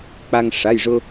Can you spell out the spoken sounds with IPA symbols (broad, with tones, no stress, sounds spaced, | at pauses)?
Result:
k͡p a˧ ŋ ʂ a˩˧˩ j ʐ ʊ˧